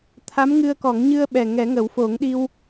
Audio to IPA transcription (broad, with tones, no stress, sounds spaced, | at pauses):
t̪ʰ a˧˥ m ŋ ɨ˧ ə̯ k ɔ˨˩˦ ŋ ɲ ɨ˧ ə̯ ɓ ɛ˨˩ ŋ ɛ˨˩˦ ŋ ə˨˩˦ w f o˨˩˦ ŋ ɗ i˧ w